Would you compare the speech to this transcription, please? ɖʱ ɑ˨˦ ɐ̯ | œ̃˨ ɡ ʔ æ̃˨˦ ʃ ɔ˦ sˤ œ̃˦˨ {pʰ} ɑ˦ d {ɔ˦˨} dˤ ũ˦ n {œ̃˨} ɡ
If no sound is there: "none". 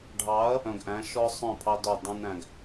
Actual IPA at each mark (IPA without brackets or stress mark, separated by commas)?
pʰ, ɔ˦˨, æ̃˨